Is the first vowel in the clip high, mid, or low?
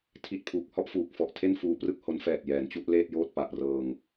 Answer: high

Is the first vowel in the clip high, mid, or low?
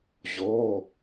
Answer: mid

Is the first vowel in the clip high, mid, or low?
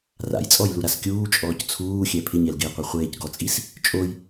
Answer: low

